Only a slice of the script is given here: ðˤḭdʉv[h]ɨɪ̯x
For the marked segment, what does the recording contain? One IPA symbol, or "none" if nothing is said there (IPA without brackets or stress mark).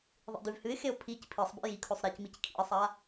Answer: h